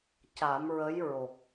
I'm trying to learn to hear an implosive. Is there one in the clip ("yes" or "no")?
no